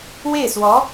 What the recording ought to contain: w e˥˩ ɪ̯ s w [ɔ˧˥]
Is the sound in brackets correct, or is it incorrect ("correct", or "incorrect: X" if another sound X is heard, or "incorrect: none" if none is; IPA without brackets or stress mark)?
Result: correct